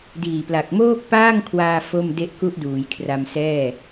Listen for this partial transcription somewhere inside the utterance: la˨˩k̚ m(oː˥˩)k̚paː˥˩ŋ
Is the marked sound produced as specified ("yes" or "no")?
yes